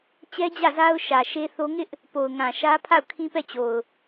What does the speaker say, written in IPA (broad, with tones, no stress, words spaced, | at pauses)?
t͡ɕɛ˦d͡ʑä˦˨za˦ʊ̯ ʃä˨ʃe˦θo˦ ŋɪ˦ʔ | po˨ʊ̯ŋã˨ʃä˦ pʰa˦˨ʊ̯kʰĩ˦pɛ˦˨t͡ɕo˨ʊ̯